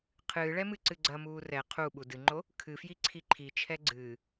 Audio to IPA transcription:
qʰ ɨː ɭ ɛ m ɨ ǀ ɨ ɡ͡ǀ ɐ m uː r ɛ qʰ u ɓ u d ɨ ŋ͡ǃ o | kʰ ɨ f j i ǀʰ i ǃʰ i t͡ʃʰ ɛ ɡ͡ǀ ɨː

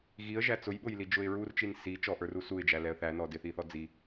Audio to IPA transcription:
ɣ i ə̯ ʒ æ t͡s ʊ j ɓ ʊ j l i d͡ʒ ʊ ɪ̯ ɹ u r t͡ʃ i n s i t͡ʃ ɔ ʔ ə˞ r u s u ɪ̯ d͡ʒ æ l ɛ ə̯ θ æ n ɔ d ɪ θ i θ ɔ d͡z i

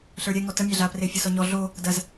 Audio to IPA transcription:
ɬ ə˞ ɾʲ ɛ ŋ ɔ t ə mʲ a ɮ a p r e fʲ ʌ s ɔ ɲ ɔ ɮ o | d ɐ z

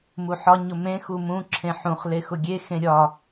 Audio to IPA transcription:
m u ħ ɒ ɲ ʊ m ẽ x u m ũ ǁʰ ẽ ħ ũ χ l e x ʊ ɡʲ e x ẽ ɾʲ ɒ

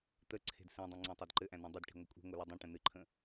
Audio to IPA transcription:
t̪ ə ǀʰ e̤ d s ĩ dˤ ẽ ŋ͡ǀ ẽ tˤ i d ǃ ɘ ʔ æ̃ n æ̃ dˤ ə d ʈ i̤ ŋʷ ɘ kʷʼ i̤ ŋʷ ɨ l ɘ dˤ ĩ ʈ ə̃ n ɨ ǃʰ ə̃

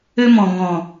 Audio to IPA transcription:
ø˦ m ɔ̃˨ ŋ ɔ̃˨

